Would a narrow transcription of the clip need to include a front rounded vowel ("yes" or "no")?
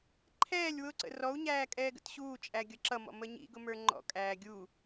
no